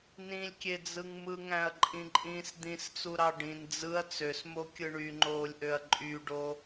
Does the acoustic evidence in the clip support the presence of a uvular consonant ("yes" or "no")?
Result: no